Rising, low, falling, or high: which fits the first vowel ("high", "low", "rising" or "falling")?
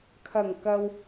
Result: low